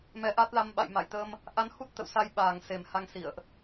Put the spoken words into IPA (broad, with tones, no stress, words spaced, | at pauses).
mɛ˨˦ʔa˦˥t̚la˧m ɓa̰˧˨jma̰˧˨j t̪ə˧m | ʔa˧nhu˦˥t̚ t̪ə̰˧˨w sa˧jɓaː˨˩ŋ se˨˩mha˧ŋsḭ˧˨ə̯ʔ